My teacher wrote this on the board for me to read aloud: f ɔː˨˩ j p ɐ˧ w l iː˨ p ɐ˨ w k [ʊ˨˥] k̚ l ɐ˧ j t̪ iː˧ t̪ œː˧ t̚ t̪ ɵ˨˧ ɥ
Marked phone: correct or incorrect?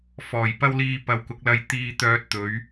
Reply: correct